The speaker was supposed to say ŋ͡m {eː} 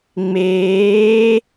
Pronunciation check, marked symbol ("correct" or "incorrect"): correct